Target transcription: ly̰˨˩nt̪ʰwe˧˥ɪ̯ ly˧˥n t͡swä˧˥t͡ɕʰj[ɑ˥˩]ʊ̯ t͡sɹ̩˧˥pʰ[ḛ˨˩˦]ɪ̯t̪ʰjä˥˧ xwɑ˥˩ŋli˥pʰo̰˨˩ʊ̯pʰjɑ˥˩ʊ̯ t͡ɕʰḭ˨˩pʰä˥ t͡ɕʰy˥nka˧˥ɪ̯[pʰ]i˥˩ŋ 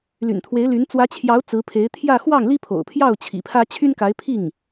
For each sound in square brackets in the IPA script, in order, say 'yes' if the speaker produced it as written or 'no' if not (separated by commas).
no, no, yes